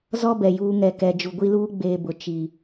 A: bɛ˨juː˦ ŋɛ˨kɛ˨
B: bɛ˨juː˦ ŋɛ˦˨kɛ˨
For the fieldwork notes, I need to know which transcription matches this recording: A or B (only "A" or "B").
A